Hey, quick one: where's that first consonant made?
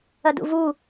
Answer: tongue tip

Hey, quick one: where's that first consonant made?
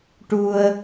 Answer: retroflex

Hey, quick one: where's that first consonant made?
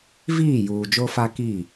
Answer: lips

